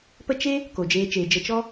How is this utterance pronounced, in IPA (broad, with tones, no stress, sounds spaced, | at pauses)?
p ə˦ t͡ʃ e˦ | k o˨ d͡ʒ eː˧ t͡ʃ eː˨ d͡ʒ ə˧ t͡ʃ ɔ˦